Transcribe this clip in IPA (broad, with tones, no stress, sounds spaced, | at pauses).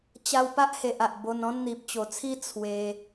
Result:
t͡ɕ a˧ w p a˦ ʔ h e˨ ʔ a˨ ʔ b o˧ n ɔ̃˦ n n̪ i˨ p̚ t͡ɕ o˨˩ t͡sʰ i˦ t͡sʰ w e˧